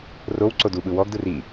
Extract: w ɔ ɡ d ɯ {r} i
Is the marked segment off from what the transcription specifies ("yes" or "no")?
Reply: no